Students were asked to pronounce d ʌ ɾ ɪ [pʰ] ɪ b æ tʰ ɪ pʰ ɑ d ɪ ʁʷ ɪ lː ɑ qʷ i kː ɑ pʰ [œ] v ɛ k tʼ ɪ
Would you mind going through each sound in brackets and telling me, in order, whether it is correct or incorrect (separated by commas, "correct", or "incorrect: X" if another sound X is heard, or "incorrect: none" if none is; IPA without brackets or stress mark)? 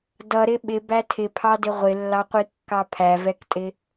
incorrect: ɓ, incorrect: æ